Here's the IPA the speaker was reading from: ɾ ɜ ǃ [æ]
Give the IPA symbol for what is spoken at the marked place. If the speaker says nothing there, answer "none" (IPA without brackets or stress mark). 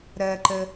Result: ə